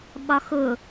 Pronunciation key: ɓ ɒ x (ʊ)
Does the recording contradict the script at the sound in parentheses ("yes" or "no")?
no